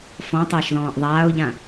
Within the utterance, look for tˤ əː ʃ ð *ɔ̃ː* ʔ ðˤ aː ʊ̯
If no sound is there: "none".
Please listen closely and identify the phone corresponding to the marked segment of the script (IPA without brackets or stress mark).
ɔ̃ː